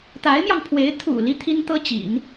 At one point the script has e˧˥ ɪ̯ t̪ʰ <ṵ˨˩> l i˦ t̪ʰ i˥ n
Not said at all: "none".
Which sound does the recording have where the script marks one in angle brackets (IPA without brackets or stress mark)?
ṵ˨˩